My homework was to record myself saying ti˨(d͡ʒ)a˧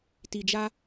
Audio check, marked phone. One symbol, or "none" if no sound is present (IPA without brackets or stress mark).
d͡ʒ